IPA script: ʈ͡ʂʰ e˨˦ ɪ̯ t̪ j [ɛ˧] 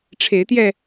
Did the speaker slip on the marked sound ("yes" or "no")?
no